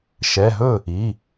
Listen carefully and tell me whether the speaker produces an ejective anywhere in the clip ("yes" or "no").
no